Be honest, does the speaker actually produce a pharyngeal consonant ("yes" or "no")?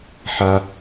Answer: yes